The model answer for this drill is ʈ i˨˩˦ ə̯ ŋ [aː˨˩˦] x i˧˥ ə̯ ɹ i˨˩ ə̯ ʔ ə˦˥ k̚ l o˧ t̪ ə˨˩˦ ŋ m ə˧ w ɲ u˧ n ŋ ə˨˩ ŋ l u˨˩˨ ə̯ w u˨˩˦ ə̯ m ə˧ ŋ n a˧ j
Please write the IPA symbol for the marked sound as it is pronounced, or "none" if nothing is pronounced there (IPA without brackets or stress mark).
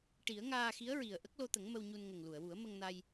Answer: aː˧